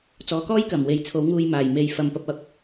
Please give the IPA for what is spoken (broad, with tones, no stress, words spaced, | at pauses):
t͡sɔː˨˧kɔː˥jkɐ˨˩m we˨˥jt͡sʰo˨˥wŋuː˧j maː˨˩jme˨˧j fɐ˨˧mpɐ˧p̚ ɐ˨˥p̚